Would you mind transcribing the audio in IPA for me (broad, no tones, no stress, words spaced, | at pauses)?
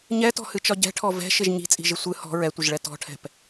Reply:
ɲɛtɔ̤hɨt͡ʃɒ ɟɛ̤ʈʰɔ vɛ̤ʃɪʒ ɲi̤t͡sʼi̤ʒɪ sʷɨ hɔ̤ ɹɛtʷɪʒɭɛ tɔ̤ʈʰɛ̤p